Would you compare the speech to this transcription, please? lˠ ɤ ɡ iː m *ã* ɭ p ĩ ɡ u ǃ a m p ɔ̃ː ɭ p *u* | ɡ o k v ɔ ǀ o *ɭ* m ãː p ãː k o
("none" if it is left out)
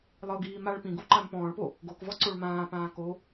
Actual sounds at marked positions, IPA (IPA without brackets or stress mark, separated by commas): a, o, ɭ